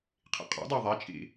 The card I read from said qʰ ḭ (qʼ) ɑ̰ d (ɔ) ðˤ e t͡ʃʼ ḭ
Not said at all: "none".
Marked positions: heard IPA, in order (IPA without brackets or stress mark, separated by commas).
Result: qʼ, ɑ